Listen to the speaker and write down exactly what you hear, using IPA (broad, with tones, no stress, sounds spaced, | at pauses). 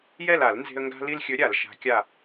j ɛ˦˨ l a˧˩˧ l n z e̤˦ ə̯ ŋ ɡ a̤˦ l i˦ l xʲ ɵ˨˥ ɾʲ a˧˩˧ l ʃ a̤˨˥ kʲ a˦˨